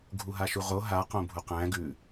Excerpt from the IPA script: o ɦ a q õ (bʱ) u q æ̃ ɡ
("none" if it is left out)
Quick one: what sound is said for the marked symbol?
bʱ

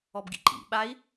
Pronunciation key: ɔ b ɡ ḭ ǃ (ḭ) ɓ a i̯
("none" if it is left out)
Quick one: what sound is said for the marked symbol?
ḭ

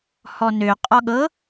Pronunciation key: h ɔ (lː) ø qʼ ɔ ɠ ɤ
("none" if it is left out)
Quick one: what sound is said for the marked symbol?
n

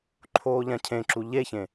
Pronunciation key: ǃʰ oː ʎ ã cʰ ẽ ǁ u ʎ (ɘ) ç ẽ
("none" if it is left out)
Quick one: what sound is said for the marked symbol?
e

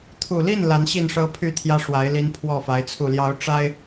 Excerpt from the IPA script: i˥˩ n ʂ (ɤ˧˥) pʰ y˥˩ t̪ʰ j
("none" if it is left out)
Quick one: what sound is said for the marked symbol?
ɤ˥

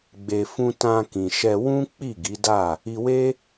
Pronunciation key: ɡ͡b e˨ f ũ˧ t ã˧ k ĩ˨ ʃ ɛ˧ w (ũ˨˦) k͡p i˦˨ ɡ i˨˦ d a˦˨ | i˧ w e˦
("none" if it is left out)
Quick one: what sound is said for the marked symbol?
ũ˦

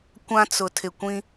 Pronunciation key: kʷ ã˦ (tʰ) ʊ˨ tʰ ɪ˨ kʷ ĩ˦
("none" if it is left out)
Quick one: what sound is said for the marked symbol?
t͡s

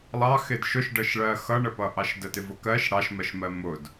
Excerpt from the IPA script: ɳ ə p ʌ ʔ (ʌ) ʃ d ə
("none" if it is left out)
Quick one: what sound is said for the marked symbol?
ɑ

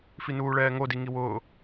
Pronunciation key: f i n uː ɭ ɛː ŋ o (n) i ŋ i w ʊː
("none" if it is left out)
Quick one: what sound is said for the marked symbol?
d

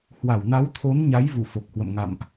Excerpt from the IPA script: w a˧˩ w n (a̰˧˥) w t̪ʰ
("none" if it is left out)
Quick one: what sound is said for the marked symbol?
a˨˦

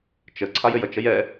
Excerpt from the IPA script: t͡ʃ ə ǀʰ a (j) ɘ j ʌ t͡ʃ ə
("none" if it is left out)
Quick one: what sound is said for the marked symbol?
j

